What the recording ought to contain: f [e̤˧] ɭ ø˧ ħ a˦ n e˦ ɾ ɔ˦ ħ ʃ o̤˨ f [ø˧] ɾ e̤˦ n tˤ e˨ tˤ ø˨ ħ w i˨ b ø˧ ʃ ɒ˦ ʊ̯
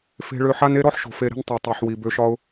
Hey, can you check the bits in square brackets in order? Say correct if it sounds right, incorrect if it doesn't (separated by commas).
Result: correct, incorrect